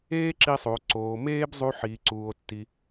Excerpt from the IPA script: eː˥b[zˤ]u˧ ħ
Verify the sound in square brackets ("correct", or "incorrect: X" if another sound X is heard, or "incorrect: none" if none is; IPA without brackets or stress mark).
correct